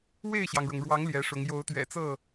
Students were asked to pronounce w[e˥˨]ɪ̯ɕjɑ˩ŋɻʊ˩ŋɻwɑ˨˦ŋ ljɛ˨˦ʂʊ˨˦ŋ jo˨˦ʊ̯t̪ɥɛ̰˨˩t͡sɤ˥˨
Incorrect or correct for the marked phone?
correct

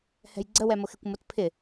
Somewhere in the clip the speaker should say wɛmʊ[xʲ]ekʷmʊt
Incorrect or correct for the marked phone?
incorrect: x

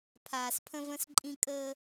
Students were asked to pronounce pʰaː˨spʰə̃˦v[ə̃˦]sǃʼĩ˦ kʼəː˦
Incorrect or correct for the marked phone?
correct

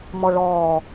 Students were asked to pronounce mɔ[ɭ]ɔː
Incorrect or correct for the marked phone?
correct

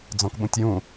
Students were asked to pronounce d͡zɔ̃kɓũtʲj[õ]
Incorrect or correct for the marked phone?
incorrect: ũ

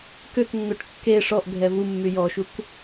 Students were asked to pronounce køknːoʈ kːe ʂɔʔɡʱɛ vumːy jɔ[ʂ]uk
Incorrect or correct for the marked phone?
incorrect: ʃ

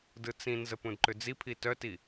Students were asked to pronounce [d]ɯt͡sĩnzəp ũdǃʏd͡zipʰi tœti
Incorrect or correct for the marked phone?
correct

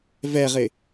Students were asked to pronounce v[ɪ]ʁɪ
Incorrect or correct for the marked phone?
incorrect: ɛ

